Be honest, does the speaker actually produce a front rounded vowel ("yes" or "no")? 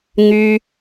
yes